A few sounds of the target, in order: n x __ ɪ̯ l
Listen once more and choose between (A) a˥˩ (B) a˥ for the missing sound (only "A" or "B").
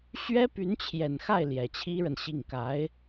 A